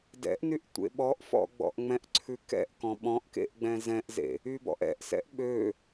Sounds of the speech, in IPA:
d ɛ̰ ʔ n y ʔ tʷ ḛ ɓ ɔ ʔ f ɔ̰ ɡ͡b ɔ̰ ʔ ŋ͡m ɛ̃ ʔ ǀʰ ʉ k ɛ̰ ʔ k ɔ̃ ɓ ɔ̃ ʔ k ḛ ʔ ɡ͡b ɛ̃ z ɛ̃ ʔ z ḛ | y b ɔ̰ ʔ ɛ̰ ʔ s ɛ̰ ʔ ɓ ø

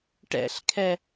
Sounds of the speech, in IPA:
ʈ ɛ̰ ɬ kʰ ɛ

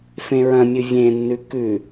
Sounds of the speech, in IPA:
f ẽ ɹ ɐ̃ mʲ ɨ vʲ ẽ nː ʉ k ʉ

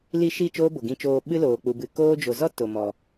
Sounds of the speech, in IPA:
l i˧ ʃ i˦˨ t͡ʃ oː˦ b o˨ ɡ ĩ˧ t͡ʃ oː˧ ɓ ɨ˦ l oː˨ k͡p u˨ b ɨ˨ k oː˦ d͡ʒ o˨ z ɔ˦ t o˨ m ɔ˨

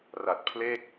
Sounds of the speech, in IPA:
r a˨˩ t̚ pʰ l e˥˩ k̚

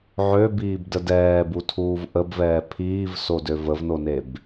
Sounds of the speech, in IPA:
ʕ ø b iː b d ə d ɛː b u tʰ uː v ʔ ə b v ɛː pʰ iː v s o d ø v ə v n o n e b

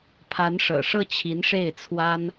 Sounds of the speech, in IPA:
pʰ a˧˥ n ʂ ɤ̰˨˩ ʂ ɤ˥˩ t͡ɕʰ i˧˥ n ʂ e˥˩ ɪ̯ t͡sʰ w a˥ n

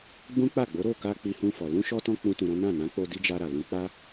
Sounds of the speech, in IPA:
ɡ͡b ũ˦ k͡p a˦˨ ɡ͡b o˨˦ ɾ o˦˨ k a˧ k͡p i˧ h ũ˧ f ɔ˨ l ũ˧ ʃ ɔ˧ t ɔ̃˧ k͡p ũ˦ t ũ˧ ɾ ɔ̃˦ n ã˦˨ n ã˨˦ k͡p o˧ d i˦ d͡ʒ a˧ ɾ a˨ l ũ˨˦ k͡p a˦

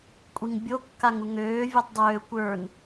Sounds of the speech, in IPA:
kʷʼ i ŋ bʲ o kː a ŋ u ŋ øː vʲ ø tˤ dˤ øː kʷ ə˞ n

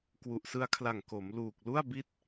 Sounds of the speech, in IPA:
k w u˨˩ ʔ s ɯ˦˥ a̯ kʰ l a˨˩ ŋ k o˩˦ m l uː˨˩ k̚ l u˥˩ a̯ b i˥˩ t̚

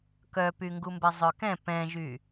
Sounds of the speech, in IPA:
k œ p y ŋ ɡ u m b ɛ zˤ œ k ɛ̃ p ɛ̃ ʒ y

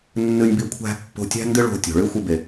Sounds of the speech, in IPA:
nː ɨ˦ nʲ b i˦ kʷʰ æ̤˥ pː o̤˦ tʲ æ̤˥ n d ɨ˥ ɭ o̤˦ tʲ o̤˨ ɭ ɨ˥ xʷ ɪ˦ b e˨

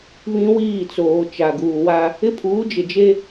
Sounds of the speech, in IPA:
β ĩ˦ w iː˦˨ t͡s oː˨ t͡ʃ a˨ ɡ uː˨ w a˦ | ɪ˦ pʰ uː˨˦ d͡ʒ ɪ˨ d͡ʒ e˦

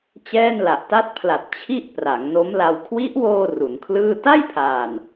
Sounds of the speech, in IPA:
t͡ɕ ɛː˥˩ n l a˨˩ ʔ t a˦˥ t̚ pʰ l a˨˩ t̚ t͡ɕʰ i˥˩ ʔ p r a˩˦ ŋ n o˦˥ m l a˧ w kʰ w i˦˥ ʔ w oː˧ r u˩˦ n kʰ l ɯː˥˩ t a˥˩ j pʰ aː˨˩ n

